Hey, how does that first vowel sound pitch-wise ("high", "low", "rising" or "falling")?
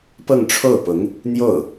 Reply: falling